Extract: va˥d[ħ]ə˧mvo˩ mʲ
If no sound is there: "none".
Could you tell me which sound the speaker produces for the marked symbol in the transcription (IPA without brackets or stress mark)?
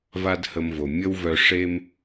h